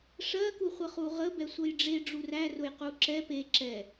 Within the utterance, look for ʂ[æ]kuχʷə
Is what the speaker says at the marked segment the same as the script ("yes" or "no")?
no